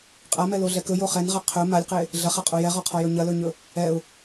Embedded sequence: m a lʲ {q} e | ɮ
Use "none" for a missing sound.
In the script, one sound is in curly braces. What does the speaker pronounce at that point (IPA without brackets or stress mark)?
q